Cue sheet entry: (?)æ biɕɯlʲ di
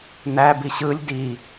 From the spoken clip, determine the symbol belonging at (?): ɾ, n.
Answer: n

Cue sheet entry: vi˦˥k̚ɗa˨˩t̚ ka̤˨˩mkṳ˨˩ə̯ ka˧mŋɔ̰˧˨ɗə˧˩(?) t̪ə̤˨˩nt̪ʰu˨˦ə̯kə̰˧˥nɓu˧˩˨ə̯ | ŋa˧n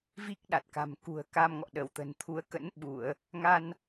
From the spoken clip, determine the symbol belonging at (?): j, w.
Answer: w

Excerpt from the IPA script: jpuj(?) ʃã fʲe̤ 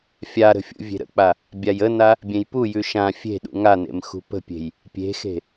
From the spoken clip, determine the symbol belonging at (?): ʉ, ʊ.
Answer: ʉ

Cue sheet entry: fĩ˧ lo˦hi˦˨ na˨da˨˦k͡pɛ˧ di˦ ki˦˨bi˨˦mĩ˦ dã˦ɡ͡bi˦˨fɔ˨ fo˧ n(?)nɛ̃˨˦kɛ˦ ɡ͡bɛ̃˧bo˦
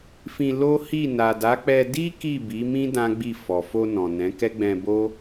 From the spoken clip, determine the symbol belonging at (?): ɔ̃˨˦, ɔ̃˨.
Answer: ɔ̃˨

